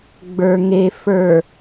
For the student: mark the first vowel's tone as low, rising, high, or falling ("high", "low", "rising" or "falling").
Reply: low